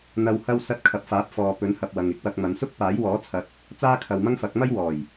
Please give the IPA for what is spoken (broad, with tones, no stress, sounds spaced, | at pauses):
n̪ ɐ˨ w h ɐ˧ w s ɐ˧ t̚ kʰ ɐ˨ p̚ f aː˨˥ p̚ f ɔː˨ p ɵ˨˥ n h ɐ˨ p̚ w ɐ˨ ŋ ɪ˧ k̚ w ɐ˧ k̚ m ɐ˨˧ n s ʊ˥ k̚ p aː˨˥ j w ɔː˨˥ t͡sʰ ɐ˨˥ t̚ | t͡s aː˥ kʰ ɐ˨ w m ɐ˥ ŋ f ɐ˨˥ k̚ m ɐ˥ j w ɔː˨˩ j